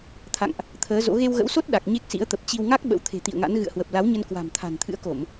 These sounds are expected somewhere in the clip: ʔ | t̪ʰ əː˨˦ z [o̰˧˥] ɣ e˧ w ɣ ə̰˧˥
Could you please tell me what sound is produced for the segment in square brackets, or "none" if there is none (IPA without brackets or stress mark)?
o̰˧˥